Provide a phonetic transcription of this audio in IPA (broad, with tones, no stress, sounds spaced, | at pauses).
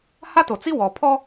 h a˦ t o˨ t͡s i˦ w ɔ˨ pʰ ɔ˦